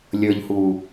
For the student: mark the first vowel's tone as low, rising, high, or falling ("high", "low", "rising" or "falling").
low